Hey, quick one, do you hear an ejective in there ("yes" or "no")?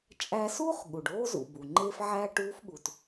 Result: yes